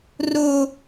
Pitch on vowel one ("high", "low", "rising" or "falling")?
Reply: high